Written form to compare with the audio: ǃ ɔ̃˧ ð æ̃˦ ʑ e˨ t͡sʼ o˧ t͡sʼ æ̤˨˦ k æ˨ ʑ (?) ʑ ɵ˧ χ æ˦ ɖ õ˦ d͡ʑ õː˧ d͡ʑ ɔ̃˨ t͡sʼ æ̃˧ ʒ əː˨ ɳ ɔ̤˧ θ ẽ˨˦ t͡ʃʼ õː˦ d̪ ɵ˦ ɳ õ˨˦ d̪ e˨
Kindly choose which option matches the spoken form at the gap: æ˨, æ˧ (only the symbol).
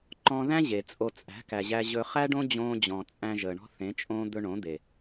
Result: æ˧